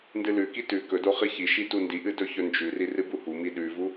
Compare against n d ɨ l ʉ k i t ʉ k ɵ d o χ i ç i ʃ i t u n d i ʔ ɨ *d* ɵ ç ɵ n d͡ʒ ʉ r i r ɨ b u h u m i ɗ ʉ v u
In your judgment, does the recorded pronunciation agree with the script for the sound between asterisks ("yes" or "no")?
yes